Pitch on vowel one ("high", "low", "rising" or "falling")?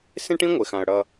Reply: high